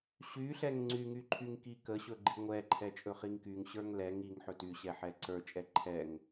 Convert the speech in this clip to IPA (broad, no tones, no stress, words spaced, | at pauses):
ɕyɬɛŋ ŋ͡ǀyŋy ǃʰyŋkikəɕɵ ɡ͡ǃiŋʷɛǃʰɛ t͡ʃʼɵχiŋkyŋɕə˞ŋ lɛŋ iŋ ħɵtyɕɛ ħɛǀə˞t͡ʃʼɛ ǃʰɛŋ